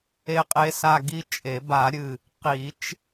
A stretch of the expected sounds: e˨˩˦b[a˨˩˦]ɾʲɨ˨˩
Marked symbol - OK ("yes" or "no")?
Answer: yes